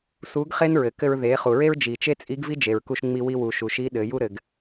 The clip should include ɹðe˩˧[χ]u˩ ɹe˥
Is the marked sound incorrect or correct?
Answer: correct